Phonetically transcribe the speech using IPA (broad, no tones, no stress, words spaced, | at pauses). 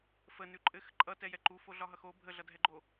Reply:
fənʉ ǃʼɘx ǃʼʌtɛjɛ ǃufoɮɒɦʌx o bʱəɮʌdʱɛɡ͡ǃo